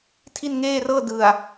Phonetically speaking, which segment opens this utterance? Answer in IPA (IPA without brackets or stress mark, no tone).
tʰ